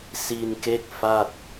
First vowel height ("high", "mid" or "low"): high